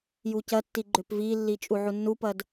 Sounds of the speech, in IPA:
j u c ɐ tː i ɡ͡ǃ ʏ p v i lː i t͡ʃʼ u ʕ u nː u p ɐ d

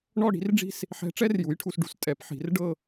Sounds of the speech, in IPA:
ɳ ɔ˥˧ ɽ i̤˩˥ r ɖ͡ʐ i̤˥˧ s | ħ ɛ̤˧˥ ʈ͡ʂ ɛ˥ r j u˩˥ j ʈʰ u˨ s ɖ ṳ˨ s tʼ ɛ˩˥ p ħ i̤˨˩˦ r ɖ ɤ˥˧

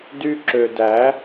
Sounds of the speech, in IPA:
d y˧ ǁ ø˨ d æ˨˦

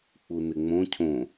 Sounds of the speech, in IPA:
k͡p u n ɪ ŋ͡m õ cʰ õ

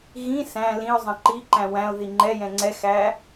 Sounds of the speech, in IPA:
ɣ ĩ s æ̃ l ĩ ʊ̯ zˤ ə̃ ǃ i ǃ æ̃ w æ̃ ʊ̯ ð i ŋ͡ǃ ɛ j ɛ̃ ŋ͡ǀ ɛ x æ

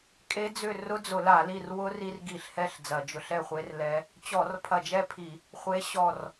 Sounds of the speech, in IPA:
kʼ e˦˥ d͡z ʏ˥˨ r ʊ˦˥ d͡z ʊ˧˩˧ l a˧˩˧ l i˥˨ r w ʊ˦˥ r i˧ r ɡ i˧˩˧ ɬ h ɛ˥˨ ɬ d͡z ɐ˧˩˧ d͡ʒ ʊ˧ ɬ ɛ˥˨ χʷ e˦˥ r l ɛ˦˥ | t͡ɕ ɔ˧˩˧ r pʰ ɐ˧˩ d͡ʒ ɛ˥˨ pʰ i˧˩˧ | χʷ e˨˥ ɕ ɔ˧˩ r

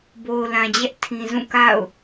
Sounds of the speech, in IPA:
b o˨ ʊ̯ l ã˨ d͡ʑ ɛ˦ ʔ tʰ ĩ˨ z ũ˦˨ k a̰˦˨ ʊ̯

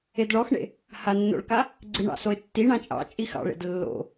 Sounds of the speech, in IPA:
e d ɭ ɔ x ɳ ḛ | h a nː o̰ ɭ k a | ɡ͡ǀ i ɳ ɑ̰ s o ɪ̯ tː i ɳ ã t͡ʃʼ ɑ̰ t͡ʃʼ i x ɑ̰ ɭ ḛ d lː o̰

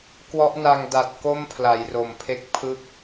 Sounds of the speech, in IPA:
k w ɔ˦˥ ʔ n a˧ ŋ d a˨˩ t̚ k o˥˩ m pʰ l a˩˦ j r o˨˩ m pʰ e˦˥ k̚ pʰ ɯ˥˩ k̚

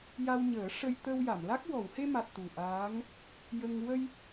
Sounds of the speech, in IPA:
j a˧ w ɲ əː˨˩˦ ʂ ə˧ j t̪ ə˧ w j a˨˩˨ m l a˦˥ k̚ w ɔ˨˩˨ w h e˧ m a˨˩ t̚ t̪ u˨˩ ʔ aː˧˥ ŋ | j ə˧ ŋ w ə˧ j

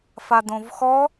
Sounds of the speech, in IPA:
f a d õ v x ɔ

